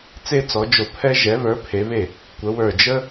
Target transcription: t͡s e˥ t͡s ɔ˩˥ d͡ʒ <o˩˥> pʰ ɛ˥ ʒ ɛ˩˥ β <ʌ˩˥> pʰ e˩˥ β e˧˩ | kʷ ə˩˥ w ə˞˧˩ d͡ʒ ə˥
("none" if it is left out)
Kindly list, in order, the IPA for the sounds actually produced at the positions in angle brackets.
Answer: o˧˩, ə˞˩˥

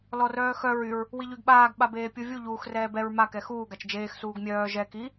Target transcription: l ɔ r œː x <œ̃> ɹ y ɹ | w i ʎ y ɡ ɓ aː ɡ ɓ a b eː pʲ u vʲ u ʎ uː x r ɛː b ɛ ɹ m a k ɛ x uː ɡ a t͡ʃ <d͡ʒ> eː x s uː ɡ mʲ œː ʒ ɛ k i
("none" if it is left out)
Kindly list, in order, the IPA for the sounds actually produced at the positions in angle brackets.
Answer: œ, d͡ʒ

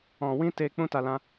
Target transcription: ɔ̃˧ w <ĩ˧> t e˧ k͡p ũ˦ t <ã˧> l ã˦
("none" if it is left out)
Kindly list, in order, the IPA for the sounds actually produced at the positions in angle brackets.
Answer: ĩ˦, a˧

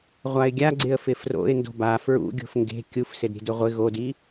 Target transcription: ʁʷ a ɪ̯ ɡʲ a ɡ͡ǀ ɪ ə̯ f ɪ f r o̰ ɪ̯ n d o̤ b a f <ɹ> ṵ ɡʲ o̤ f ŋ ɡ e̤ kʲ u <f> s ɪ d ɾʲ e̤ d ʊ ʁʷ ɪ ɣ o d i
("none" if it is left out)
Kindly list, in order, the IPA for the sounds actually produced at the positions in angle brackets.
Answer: ɹ, f

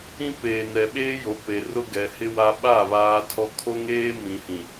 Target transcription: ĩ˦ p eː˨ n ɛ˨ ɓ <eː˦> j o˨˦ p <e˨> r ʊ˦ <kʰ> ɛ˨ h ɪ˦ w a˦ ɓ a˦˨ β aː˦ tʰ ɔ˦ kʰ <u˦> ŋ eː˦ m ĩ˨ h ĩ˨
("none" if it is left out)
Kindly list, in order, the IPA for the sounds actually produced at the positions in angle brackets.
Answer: eː˦, e˨, ɡ, o˦

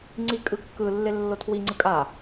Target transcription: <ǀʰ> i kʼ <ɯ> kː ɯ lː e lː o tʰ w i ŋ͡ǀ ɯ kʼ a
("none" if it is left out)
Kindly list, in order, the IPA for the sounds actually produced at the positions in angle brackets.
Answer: ŋ͡ǀ, ɯ

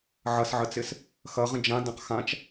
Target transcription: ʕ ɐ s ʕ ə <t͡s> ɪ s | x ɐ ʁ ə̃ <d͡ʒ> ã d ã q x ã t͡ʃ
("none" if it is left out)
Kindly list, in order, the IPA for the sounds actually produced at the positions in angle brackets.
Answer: t͡s, d͡ʒ

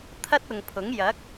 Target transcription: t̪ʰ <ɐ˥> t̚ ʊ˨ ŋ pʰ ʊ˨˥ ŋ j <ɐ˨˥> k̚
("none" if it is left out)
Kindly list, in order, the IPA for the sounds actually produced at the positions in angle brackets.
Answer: ɐ˥, ɐ˨˥

